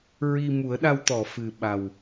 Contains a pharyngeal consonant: no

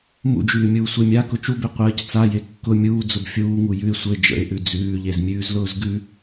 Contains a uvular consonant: yes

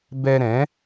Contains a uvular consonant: no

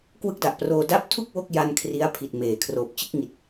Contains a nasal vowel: no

